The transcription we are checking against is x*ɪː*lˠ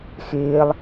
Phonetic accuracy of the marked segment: correct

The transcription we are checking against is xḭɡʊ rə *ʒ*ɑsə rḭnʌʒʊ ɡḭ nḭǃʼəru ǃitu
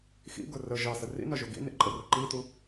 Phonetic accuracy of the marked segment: correct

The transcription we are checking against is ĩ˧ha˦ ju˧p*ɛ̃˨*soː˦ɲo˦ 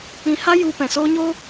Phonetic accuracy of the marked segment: correct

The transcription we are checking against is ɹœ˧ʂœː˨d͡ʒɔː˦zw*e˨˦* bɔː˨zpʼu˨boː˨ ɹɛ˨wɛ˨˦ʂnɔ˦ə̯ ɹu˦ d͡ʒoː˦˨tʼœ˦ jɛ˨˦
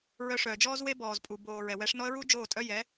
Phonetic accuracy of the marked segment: incorrect: e˦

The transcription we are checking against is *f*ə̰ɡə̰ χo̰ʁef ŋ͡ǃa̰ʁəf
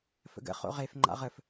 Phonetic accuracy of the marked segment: correct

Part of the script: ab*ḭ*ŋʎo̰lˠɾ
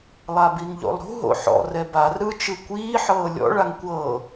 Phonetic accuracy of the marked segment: incorrect: i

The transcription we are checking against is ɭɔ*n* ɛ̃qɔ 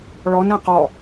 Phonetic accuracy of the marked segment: correct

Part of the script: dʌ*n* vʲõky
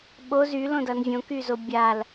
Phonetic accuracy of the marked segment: correct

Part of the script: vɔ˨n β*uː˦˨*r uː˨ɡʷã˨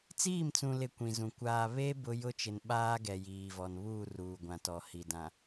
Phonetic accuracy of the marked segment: correct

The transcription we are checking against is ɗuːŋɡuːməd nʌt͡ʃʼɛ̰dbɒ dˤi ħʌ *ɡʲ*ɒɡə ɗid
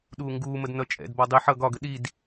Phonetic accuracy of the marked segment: incorrect: ɡ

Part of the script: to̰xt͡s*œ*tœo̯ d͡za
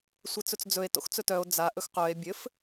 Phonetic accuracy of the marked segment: incorrect: ɵ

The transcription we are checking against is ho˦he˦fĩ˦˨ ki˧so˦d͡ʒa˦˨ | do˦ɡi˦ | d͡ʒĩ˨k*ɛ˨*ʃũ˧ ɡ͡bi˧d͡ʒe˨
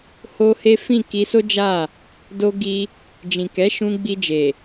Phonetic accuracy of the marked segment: incorrect: ɛ˨˦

